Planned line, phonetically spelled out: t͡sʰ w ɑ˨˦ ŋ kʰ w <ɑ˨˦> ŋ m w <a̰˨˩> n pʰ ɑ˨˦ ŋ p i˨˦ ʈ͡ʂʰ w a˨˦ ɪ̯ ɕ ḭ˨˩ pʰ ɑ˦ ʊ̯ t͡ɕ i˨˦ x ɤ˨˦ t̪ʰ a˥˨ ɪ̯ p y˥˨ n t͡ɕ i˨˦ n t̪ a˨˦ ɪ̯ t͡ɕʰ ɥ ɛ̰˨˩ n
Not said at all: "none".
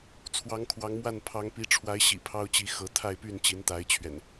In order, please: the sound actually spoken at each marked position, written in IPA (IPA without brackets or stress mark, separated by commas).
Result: ɑ˨˦, a˥˨